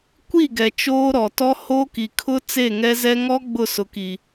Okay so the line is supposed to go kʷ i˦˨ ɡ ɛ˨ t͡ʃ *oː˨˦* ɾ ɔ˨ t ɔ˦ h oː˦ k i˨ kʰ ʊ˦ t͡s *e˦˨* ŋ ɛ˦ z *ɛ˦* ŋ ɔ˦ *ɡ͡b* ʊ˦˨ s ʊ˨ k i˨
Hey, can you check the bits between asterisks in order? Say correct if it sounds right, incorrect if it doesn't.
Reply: incorrect, correct, correct, correct

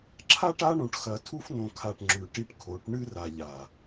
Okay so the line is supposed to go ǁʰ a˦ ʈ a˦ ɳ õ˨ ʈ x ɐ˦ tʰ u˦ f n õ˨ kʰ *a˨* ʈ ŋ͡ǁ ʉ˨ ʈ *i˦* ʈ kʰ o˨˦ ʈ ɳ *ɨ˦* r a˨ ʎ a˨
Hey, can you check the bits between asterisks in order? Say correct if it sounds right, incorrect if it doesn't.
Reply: correct, correct, correct

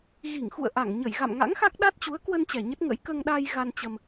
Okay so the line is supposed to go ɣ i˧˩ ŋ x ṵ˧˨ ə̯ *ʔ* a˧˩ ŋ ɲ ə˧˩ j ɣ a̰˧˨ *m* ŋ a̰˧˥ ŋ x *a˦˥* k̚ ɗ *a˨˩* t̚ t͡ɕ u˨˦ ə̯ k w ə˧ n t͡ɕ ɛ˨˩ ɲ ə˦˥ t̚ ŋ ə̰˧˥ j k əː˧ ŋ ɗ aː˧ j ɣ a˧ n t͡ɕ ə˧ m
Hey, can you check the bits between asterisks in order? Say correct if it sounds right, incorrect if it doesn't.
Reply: correct, correct, correct, incorrect

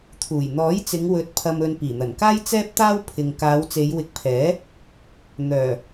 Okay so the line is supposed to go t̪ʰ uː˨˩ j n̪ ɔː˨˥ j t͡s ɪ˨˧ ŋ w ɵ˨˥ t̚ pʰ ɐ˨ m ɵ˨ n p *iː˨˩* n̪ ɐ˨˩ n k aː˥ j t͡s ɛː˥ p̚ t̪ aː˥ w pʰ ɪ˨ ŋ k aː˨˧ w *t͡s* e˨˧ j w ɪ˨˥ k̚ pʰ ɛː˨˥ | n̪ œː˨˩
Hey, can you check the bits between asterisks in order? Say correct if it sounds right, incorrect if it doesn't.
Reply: correct, correct

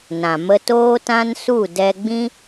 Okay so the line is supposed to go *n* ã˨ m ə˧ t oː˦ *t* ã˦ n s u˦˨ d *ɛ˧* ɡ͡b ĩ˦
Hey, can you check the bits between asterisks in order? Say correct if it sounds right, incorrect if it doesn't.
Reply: correct, correct, correct

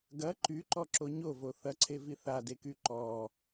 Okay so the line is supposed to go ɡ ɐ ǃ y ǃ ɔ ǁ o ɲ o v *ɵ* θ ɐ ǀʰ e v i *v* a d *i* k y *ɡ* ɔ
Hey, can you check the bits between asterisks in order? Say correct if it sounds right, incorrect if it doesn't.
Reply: incorrect, incorrect, incorrect, incorrect

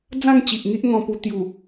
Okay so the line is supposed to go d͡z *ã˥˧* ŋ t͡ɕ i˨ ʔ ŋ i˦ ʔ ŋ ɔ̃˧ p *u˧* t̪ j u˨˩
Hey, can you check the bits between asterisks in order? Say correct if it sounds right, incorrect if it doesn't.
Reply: correct, correct

